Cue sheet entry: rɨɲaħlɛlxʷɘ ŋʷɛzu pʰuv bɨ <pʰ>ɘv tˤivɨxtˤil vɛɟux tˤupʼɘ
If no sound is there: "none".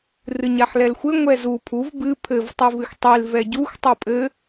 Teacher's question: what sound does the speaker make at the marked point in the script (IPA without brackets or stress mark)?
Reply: pʰ